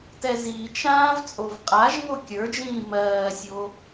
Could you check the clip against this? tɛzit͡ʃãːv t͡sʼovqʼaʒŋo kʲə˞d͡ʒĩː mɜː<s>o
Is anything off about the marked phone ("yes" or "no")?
yes